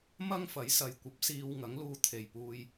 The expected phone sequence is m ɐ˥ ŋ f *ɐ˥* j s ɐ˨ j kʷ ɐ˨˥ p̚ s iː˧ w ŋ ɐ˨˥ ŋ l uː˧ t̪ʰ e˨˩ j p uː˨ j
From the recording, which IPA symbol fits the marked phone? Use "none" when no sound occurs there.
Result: ɐ˨˥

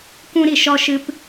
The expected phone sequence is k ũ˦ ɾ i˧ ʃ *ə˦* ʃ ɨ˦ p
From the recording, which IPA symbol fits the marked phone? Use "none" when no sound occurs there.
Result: ɔ˦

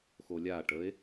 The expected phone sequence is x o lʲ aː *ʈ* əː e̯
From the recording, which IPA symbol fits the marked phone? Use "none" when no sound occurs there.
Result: ʈ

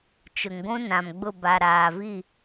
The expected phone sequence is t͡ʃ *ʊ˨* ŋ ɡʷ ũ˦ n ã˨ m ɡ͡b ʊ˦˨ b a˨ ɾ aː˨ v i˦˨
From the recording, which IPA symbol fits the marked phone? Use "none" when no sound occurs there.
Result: ʊ˨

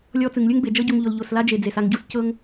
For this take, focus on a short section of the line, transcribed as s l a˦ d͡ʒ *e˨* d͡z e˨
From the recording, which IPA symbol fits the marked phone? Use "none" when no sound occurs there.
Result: e˨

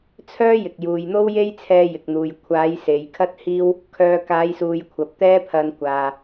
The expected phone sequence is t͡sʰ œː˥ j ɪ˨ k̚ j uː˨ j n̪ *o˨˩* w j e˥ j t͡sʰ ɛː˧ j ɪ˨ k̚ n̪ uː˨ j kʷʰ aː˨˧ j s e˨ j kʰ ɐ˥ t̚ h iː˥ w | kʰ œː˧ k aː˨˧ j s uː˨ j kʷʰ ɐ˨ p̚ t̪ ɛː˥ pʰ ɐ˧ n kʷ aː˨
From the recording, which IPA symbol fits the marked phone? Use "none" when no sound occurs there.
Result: o˥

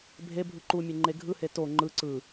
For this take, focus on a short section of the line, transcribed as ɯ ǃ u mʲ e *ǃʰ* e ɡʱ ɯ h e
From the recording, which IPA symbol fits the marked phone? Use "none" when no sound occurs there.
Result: ŋ͡ǃ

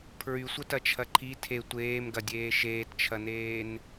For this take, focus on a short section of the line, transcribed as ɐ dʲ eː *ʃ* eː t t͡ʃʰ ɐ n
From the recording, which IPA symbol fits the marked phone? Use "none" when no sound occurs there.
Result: ʃ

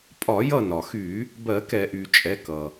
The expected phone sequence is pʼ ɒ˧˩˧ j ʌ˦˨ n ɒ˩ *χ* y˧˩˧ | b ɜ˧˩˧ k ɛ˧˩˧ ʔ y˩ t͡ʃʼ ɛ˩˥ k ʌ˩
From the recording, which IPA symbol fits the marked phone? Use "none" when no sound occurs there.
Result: x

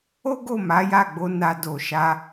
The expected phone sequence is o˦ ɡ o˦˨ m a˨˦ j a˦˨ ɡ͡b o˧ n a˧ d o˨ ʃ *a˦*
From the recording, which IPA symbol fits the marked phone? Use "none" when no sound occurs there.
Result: a˧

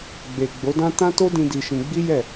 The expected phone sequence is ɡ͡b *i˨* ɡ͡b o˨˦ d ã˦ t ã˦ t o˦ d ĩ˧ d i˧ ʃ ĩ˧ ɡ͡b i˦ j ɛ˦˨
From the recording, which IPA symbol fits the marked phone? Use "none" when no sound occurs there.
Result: e˨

